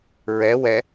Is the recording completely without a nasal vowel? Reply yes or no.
yes